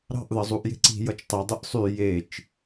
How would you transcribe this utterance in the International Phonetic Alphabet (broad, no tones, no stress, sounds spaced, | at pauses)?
ɾ ɑ̤ ʔ ð ʌ zˤ u ʔ j e̤ ǀ i̤ j ʌ t͡ʃ tˤ e dˤ ɯ ʔ sˤ y j e t͡ʃ